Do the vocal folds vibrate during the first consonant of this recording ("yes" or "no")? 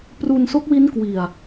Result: no